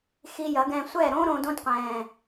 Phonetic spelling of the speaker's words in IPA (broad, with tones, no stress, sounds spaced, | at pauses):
x i˧ j ɐ˨˦ ɡ ɛ̃ː˧ sʷ ɛː˦˨ ɾ õː˦ ɾ õː˧ d õ˦ d qʷ ɛ̃ː˨